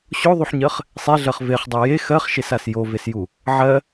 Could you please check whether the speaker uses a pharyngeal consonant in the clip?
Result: yes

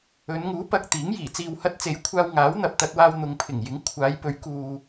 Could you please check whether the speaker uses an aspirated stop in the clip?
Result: yes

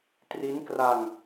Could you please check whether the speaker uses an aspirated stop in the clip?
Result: no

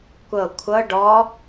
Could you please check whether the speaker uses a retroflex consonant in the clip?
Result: yes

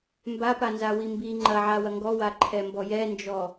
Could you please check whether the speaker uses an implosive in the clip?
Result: no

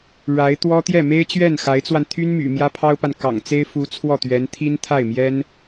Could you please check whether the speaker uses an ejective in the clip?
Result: no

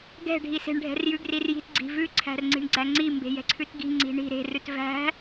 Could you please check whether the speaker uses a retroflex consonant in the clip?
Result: yes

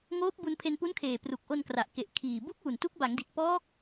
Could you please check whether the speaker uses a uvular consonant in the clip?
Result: no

